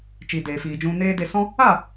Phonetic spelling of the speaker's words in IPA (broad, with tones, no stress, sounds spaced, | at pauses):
t͡ʃ i˨ d eː˨ f iː˨ d͡ʒ ũ˧ n eː˦ d e˧ s ɔ̃˦ | a˦˨